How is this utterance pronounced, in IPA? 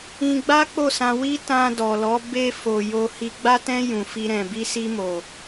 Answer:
ĩ˧ ɡ͡b a˦ k͡p o˦˨ s ã˧ w i˦ t ã˧ d ɔ˨ l ɔ˨˦ b e˧ f o˨ j o˧ h i˧ ɡ͡b a˦ t ɛ̃˦ j ũ˧ f i˦ ɾ ɛ̃˧ b i˦ s i˦ m o˧

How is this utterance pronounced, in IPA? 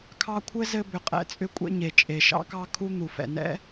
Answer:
kʰ ɑ˦ kʷʰ ɘ˥ z ɘ˦ b ʏ˩ qʼ ɛ̰˥ t͡sʼ ʏ˦ kʷʼ ɛ̰˦ ɲ e˩ t͡ʃʼ e˩ ʃ ɑ̰˦ k ɑ˦ kʰ u˦ n̪ u˩ f ɛ̰˩ n ɛ̰˥

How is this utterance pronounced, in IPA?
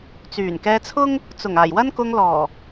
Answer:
t͡s yː˨˩ n k ɛː˧ t͡sʰ ʊ˥ ŋ | t͡s ʊ˨˩ ŋ aː˨˩ j w ɐ˥ n k ʊ˧ ŋ l ɔː˨˩

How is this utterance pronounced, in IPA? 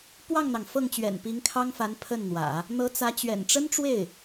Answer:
p w ɑ˥˩ ŋ n̪ ɑ˩ ŋ f ɤ˥˩ ŋ t͡ɕ ɥ ɛ̰˨˩ n p i˧˥ ŋ kʰ ɑ˥ ŋ f a˧˥ n pʰ ə˥˩ n n̪ w ä̰˨˩˦ | n̪ ɤ˧˥ t͡s ä˧˥ t͡ɕ ɥ ɛ̰˨˩ n ʈ͡ʂ ə˥ n ʈ͡ʂ w e˥˩ ɪ̯

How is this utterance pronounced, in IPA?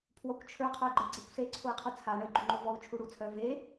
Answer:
pʰ w ɔ kʷ t͡ʃʰ ə˞ qʰ œ i̯ ɡ͡ǃ ə˞ ɡ͡ǀ e kʷ s e ǀʰ o i̯ qʰ u t͡sʰ a ɳ ə i̯ ɡ͡ǃ u ŋ͡ǃ o v ɔ u̯ t͡ʃʰ u ɽ u t͡sʰ œ v e

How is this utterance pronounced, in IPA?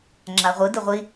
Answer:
ŋ͡ǁ a ʁʷ ɯ d ɯ ʁʷ i

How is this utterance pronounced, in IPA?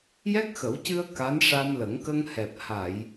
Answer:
j ɛ˦˥ k̚ x ə˨˩˦ w c ɨ˧ ə̯ k a˧˥ n ʂ a˧ m l ə˨˩˦ ŋ k ə˧ ŋ h ɛ˨˩ p̚ h a˨˩˨ j

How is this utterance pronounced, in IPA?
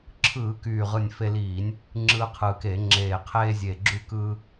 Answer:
ǁʰ ɯː˧˩˧ k yː˨˩ ʁ ɯ˨˩ nʲ f e˧ l iː˧˩˧ nʲ | ŋ͡ǁ ɯː˧ qʰ ɯː˨˩ k e˧˩˧ ŋ͡ǁ eː˨˩ qʰ eː˧ zʲ e˨˩ ɡ͡ǁ y˧ k ɯː˧

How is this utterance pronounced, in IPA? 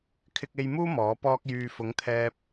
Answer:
kʰ ɪ˧ k̚ e˧ j m uː˥ m ɔː˨˥ p ɔː˥ k̚ j yː˨ f ʊ˨˥ ŋ t̪ʰ ɛː˧ p̚

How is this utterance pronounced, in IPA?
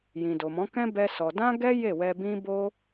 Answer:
j ĩ˨ d o˨ m ɔ̃˨˦ k ɛ̃˦ b ɛ˦ s ɔ˧ d ã˦ ɡ ɛ˦ j e˦˨ w ɛ˧ b ĩ˦ b o˦

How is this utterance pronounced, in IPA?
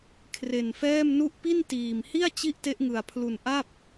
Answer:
kʰ r e˧ n f ɛː˥˩ m n u˥˩ ʔ p i˥˩ n t iː˨˩ m h i˥˩ a̯ t͡ɕ i˥˩ ʔ t e˦˥ ʔ ŋ ɯ˧ a̯ pʰ l u˧ n ʔ a˥˩ p̚

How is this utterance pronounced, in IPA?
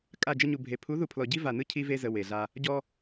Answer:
kʼ a˦˨ d͡ʒ ə˦ ɲ u˨ bʱ e˨˦ pʰ u˨˦ ð u˨ pʰ l ɔ˨ ɟ i˦ v a˨ n ɯ˦ cʰ i˦ v e˦ z ə˨ w e˨ ɮ a˦ | ɟ ɔ˦

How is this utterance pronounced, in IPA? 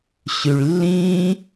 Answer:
ɕ y ɭ lː ĩː

